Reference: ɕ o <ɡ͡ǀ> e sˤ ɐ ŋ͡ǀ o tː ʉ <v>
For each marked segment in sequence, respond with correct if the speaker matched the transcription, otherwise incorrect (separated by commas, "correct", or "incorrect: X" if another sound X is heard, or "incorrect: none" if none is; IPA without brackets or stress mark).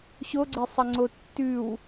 correct, incorrect: w